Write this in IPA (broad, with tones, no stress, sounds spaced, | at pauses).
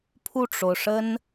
pʰ u˥˩ ʈ͡ʂ o˩ ʊ̯ ʂ ə˥ n